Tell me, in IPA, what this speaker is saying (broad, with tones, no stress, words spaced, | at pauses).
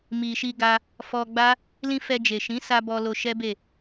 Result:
mi˨ʃi˧ɡa˧ | fɔ˧ɡ͡ba˦ | lĩ˧ fɛ˧d͡ʒe˨ ʃĩ˨˦sa˧ bɔ˧lo˧ʃɛ˦be˦˨